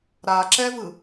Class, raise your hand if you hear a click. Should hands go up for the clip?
yes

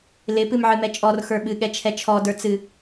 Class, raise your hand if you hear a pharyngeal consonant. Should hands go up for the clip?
yes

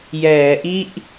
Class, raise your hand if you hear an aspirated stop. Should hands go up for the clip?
no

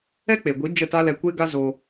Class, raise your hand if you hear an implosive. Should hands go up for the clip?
no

